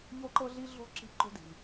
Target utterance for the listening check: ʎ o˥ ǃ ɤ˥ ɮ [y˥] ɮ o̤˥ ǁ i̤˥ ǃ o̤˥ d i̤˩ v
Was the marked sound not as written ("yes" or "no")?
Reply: yes